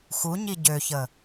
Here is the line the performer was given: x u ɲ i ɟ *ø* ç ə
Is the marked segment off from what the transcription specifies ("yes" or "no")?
no